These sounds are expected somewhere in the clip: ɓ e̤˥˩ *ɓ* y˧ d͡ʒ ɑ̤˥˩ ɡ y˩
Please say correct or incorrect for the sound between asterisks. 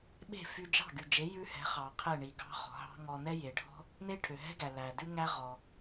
incorrect